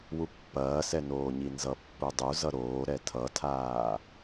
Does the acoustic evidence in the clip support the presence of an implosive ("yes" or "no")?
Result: no